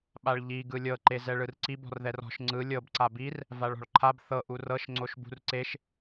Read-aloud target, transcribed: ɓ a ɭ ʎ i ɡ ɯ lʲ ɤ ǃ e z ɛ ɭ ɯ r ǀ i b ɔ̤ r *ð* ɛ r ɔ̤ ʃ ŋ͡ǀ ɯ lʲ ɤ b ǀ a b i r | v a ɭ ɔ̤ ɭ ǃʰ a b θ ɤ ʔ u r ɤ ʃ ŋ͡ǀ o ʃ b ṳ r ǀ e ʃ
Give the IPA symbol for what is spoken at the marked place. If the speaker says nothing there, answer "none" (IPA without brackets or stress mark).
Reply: ð